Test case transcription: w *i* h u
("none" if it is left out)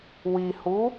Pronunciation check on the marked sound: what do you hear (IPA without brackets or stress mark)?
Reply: i